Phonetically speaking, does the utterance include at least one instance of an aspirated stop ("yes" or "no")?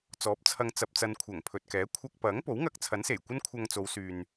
yes